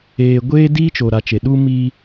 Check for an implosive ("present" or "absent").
present